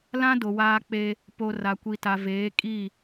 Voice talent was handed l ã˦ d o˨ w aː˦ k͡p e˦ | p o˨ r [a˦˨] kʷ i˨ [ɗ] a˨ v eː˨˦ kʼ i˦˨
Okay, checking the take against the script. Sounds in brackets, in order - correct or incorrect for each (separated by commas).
incorrect, incorrect